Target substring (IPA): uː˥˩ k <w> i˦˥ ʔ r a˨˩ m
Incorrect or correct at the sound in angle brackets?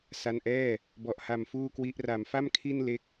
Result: correct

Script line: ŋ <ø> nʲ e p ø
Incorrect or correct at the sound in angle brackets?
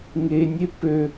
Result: incorrect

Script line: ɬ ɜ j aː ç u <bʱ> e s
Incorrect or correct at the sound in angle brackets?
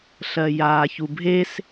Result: correct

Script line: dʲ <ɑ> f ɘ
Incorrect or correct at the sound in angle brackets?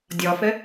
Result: incorrect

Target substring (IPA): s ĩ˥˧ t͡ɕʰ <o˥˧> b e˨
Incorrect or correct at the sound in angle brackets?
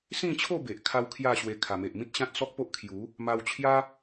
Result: correct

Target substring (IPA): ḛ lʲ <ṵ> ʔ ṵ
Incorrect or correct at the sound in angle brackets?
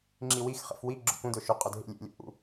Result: incorrect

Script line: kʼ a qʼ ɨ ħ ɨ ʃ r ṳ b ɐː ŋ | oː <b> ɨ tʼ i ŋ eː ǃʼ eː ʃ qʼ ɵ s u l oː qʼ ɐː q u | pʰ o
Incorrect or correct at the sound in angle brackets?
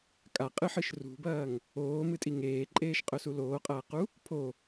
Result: incorrect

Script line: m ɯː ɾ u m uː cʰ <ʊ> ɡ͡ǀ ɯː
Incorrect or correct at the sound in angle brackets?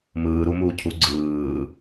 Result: incorrect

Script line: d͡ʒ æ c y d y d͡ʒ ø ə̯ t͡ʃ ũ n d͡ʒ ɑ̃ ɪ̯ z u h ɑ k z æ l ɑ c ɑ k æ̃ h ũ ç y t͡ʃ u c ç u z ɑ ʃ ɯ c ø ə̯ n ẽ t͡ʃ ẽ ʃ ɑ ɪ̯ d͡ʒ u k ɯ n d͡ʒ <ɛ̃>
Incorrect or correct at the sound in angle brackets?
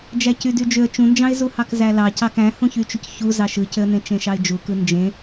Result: incorrect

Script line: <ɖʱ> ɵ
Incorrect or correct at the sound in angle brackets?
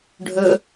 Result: correct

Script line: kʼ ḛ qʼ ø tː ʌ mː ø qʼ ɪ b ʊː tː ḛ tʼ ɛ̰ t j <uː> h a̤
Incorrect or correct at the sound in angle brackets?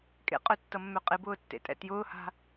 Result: incorrect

